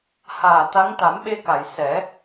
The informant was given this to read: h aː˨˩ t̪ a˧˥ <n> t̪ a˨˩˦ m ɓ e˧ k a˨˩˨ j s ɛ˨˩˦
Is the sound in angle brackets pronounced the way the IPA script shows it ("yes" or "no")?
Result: no